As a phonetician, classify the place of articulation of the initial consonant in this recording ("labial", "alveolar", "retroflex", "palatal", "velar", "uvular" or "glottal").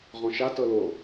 uvular